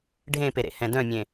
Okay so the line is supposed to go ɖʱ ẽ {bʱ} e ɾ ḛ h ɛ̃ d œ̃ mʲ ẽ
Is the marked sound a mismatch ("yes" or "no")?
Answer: yes